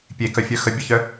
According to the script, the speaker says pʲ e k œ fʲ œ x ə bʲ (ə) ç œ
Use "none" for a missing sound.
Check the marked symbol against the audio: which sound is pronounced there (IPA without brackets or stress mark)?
œ